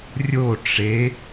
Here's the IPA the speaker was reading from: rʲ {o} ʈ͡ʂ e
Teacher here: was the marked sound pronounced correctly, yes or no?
yes